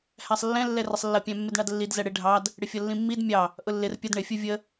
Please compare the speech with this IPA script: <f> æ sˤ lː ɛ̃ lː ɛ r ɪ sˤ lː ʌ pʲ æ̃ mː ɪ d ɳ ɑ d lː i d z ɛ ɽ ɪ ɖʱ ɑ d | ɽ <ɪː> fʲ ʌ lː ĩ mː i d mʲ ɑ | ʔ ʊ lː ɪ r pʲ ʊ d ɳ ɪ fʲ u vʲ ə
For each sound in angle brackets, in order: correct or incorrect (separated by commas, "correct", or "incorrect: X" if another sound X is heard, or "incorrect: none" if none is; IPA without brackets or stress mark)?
incorrect: h, incorrect: ɪ